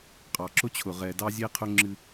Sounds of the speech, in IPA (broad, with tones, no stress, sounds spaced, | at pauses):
qʼ ɑ˨ ǁ ʊ˦ t͡ɕʰ ʊ˨ ʁ ɛ˨ d ɑ˦ zʲ e˦ qʰ ʊ˦ ŋ͡ǁ ɨ˦